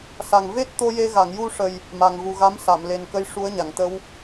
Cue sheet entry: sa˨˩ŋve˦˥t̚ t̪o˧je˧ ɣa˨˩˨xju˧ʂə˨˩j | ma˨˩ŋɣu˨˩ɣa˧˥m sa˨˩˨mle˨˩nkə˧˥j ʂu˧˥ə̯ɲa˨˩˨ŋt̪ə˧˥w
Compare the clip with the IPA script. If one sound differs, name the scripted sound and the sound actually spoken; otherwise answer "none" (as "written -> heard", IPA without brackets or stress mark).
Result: x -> ŋ